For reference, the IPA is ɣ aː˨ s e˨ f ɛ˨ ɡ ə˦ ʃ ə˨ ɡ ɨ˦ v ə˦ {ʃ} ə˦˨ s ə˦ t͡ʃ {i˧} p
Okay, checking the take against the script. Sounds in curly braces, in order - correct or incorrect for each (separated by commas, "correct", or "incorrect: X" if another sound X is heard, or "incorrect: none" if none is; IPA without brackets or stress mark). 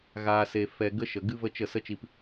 incorrect: t͡ʃ, correct